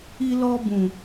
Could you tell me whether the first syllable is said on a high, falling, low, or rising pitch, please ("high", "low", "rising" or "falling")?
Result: high